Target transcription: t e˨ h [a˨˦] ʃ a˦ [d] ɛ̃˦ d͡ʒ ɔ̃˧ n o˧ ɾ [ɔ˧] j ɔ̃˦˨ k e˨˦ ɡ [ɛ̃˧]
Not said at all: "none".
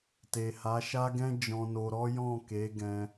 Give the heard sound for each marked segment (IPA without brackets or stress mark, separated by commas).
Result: a˨˦, ɡ, ɔ˦, ɛ̃˧